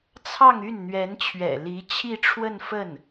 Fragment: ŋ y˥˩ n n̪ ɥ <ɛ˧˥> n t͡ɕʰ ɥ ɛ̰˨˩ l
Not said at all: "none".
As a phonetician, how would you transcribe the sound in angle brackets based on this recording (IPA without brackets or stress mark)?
ɛ˧˥